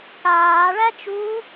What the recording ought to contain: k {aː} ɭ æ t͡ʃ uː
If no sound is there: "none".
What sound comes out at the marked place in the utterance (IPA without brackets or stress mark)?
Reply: aː